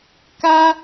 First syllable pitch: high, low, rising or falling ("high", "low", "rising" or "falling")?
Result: high